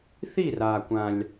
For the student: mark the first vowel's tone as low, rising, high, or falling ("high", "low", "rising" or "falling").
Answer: falling